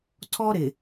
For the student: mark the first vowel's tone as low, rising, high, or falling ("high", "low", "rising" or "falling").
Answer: high